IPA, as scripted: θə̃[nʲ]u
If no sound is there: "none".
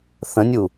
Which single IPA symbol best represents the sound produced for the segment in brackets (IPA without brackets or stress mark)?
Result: nʲ